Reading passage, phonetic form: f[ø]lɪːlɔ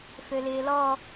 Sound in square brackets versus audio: correct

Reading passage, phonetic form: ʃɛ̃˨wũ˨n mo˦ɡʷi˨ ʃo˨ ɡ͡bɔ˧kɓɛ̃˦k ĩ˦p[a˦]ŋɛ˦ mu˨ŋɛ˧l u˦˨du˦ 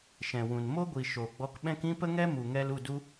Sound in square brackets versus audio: incorrect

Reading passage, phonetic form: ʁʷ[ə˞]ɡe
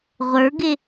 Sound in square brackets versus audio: correct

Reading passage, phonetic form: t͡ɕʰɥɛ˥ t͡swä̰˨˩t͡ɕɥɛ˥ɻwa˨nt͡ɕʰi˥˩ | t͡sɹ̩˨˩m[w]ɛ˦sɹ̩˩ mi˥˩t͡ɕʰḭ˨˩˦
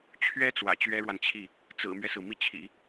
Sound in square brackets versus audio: incorrect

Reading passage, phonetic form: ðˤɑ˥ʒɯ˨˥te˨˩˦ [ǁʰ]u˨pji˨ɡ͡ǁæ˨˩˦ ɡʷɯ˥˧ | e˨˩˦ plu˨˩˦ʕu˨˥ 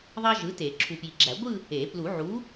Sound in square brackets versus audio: correct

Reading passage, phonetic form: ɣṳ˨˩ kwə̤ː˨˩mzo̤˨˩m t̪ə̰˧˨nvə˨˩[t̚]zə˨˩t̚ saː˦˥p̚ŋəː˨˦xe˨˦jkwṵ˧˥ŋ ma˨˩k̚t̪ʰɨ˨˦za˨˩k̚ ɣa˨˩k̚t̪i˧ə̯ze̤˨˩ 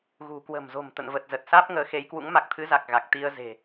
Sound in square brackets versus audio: correct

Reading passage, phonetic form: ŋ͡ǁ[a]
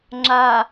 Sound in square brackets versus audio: correct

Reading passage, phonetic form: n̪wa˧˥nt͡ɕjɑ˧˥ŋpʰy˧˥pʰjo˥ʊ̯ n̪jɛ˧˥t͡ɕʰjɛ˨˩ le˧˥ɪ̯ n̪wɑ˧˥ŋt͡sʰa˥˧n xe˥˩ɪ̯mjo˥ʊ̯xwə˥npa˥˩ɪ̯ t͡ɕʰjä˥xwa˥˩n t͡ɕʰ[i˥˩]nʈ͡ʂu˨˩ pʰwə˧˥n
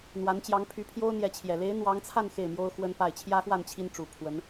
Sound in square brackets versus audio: incorrect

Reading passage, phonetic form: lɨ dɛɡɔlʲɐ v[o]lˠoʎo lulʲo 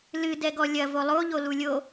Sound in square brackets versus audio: correct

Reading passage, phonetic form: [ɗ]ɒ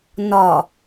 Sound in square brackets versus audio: incorrect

